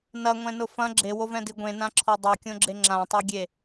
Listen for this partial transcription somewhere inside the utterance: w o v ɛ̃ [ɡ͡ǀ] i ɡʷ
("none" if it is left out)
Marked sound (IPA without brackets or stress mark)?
d